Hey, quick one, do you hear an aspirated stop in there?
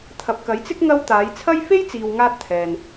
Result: yes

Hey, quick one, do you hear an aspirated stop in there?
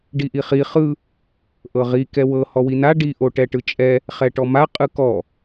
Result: no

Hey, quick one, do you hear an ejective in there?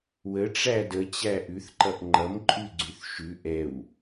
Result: yes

